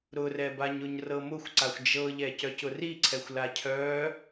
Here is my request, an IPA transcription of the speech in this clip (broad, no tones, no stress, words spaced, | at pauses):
ɾʊrɛbaɲʊɲ rɤmʊxʷǀaxʷ d͡ʒɤʎɛ cœcʊriǀʰɛxʷ lacʰœ